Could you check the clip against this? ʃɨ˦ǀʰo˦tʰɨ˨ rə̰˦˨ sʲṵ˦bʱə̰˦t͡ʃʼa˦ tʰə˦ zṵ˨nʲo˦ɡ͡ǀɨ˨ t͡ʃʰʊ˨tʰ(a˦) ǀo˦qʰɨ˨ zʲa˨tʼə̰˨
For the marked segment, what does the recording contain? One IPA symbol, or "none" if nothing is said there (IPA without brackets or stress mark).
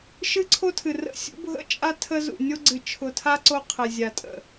a˦